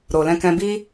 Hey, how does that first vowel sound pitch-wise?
low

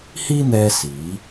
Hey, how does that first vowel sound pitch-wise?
high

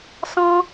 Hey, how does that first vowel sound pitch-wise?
high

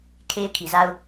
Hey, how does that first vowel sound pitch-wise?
high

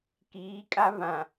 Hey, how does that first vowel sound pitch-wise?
rising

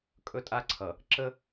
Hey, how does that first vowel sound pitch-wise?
high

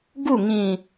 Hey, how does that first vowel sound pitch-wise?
falling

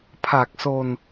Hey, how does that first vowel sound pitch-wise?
low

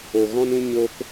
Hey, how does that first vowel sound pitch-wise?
low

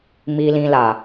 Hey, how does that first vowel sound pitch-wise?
low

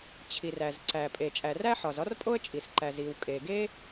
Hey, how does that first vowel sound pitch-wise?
low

